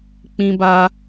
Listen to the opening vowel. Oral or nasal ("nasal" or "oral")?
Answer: nasal